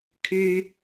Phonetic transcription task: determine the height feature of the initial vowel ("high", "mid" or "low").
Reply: high